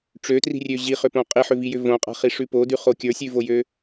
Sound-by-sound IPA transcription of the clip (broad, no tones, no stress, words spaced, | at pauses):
ʈ͡ʂøtri̤rʲø ʑiχʏpõ qʼiħʏvijʏ võqʼa̤χiʂʉ podʉχo kʲə˞sʲʉvojø